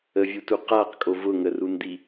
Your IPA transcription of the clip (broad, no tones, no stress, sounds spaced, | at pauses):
ə vʲ u t u q a q kʼ o v ʊ ŋ ə r u n d̪ i